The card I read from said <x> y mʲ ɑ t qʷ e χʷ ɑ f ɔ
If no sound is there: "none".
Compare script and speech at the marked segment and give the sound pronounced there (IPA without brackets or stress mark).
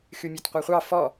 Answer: x